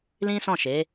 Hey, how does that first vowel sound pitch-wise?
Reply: high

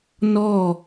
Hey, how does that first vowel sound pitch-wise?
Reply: falling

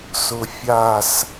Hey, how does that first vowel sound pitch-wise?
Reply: low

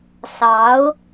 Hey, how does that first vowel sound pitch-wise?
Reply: rising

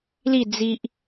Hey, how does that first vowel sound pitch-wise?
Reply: falling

